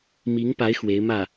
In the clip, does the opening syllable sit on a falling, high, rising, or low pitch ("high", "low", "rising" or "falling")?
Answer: rising